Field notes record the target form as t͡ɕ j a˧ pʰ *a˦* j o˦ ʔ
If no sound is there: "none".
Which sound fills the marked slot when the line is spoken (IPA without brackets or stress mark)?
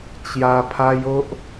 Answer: a˦